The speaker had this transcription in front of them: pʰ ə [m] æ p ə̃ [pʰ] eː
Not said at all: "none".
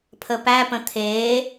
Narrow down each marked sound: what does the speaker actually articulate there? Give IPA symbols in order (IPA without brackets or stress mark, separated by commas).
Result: p, t̪ʰ